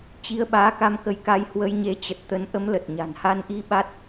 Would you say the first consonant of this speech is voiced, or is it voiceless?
voiceless